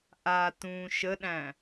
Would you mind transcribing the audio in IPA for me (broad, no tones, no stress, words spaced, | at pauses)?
ʔa tũːʃəɗæ̃